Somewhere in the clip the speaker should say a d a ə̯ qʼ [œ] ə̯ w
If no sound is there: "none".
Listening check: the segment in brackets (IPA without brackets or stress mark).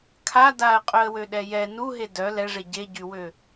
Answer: œ